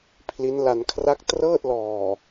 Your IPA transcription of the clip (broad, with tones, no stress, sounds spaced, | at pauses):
pʰ l i˦˥ n l a˧ n kʰ r a˥˩ k̚ t r ɤː˥˩ t̚ l ɔː˨˩